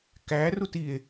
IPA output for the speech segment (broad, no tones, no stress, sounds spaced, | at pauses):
k æ r u t i e̯